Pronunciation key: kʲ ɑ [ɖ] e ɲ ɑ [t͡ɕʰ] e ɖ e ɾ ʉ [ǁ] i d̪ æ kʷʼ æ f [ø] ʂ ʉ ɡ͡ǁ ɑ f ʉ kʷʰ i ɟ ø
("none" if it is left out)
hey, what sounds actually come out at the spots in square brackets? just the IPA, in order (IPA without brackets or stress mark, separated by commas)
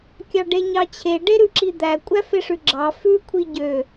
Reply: ɖ, t͡ɕʰ, ǁ, e